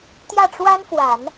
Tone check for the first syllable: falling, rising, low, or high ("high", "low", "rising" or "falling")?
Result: falling